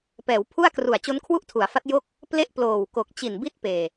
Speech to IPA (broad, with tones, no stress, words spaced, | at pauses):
pɛː˩˦wpʰu˥˩a̯kru˨˩a̯ t͡ɕo˦˥nkʰwu˥˩ʔtʰu˩˦a̯fa˦˥t̚ jo˥˩k̚ | ple˥˩ʔploː˨˩wko˨˩k̚ t͡ɕi˨˩nbi˥˩t̚peː˨˩